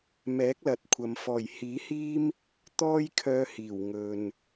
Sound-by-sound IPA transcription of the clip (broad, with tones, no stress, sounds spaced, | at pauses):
m ɛː˨˥ k̚ l ɐ˨˥ t̚ kʷʰ ɐ˨ m f ɔː˨˩ j h iː˨˥ h iː˥ m | t̪ ɔː˥ j kʰ œː˧ h iː˨˩ w ŋ ɵ˨ n